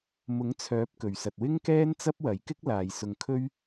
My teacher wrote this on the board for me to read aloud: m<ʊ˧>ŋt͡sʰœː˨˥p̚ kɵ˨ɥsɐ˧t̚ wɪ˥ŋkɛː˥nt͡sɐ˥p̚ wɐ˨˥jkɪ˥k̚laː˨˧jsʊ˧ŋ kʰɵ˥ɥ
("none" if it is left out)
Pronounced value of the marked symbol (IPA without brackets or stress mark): ʊ˨˥